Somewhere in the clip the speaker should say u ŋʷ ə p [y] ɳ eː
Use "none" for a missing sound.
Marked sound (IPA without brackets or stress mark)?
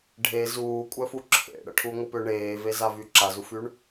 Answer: ʏ